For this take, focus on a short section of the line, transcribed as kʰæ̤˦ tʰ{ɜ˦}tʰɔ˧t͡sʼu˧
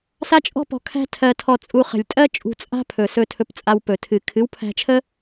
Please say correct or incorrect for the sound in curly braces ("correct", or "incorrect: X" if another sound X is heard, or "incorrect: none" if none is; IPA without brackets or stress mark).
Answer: incorrect: ɜ˧